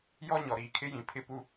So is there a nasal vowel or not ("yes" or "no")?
yes